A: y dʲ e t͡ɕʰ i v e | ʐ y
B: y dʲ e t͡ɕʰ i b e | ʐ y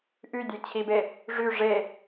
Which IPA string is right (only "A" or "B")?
B